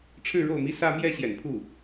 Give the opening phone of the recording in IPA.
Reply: ʈ͡ʂʰ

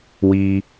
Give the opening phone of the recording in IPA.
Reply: w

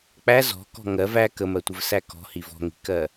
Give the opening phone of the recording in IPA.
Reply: k͡p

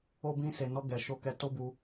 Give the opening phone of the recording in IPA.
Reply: o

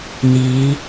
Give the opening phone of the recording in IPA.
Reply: n̪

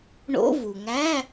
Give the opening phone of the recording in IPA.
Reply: ɳ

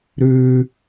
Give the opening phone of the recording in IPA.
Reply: ɾ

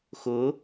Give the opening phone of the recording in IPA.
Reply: x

